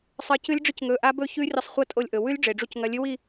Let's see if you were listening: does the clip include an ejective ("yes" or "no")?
yes